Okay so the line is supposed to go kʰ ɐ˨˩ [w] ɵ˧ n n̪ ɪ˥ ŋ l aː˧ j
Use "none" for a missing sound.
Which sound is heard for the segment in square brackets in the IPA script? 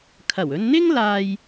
w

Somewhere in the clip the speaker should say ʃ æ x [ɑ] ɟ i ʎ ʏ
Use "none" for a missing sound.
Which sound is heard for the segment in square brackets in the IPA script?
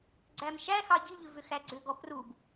ɑ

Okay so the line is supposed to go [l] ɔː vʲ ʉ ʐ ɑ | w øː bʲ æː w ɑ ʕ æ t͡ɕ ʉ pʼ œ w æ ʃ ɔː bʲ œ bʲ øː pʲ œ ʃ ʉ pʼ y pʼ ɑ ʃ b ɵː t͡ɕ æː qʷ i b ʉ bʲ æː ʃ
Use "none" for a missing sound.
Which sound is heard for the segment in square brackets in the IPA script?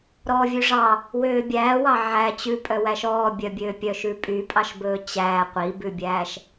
ɾ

